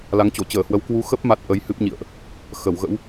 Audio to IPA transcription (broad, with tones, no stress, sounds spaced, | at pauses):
l a˨˦ ŋ t͡ɕ o˧˩ t͡ɕ əː˧˩ h w ə˨˦ w k w u˨˦ x ə˦˥ p̚ m a˦˥ t̚ ʔ ə˨˦ j h ɨ˦˥ p̚ ɲ ḭ˧˨ ə̯ ʔ | x ə˧˩ w ɣ ə̰˧˥ w